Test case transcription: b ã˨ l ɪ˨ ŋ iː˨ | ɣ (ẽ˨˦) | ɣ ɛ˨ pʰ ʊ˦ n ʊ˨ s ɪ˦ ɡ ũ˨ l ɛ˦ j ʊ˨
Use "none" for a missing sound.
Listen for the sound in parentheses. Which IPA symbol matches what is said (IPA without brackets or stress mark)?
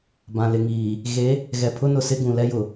e˨˦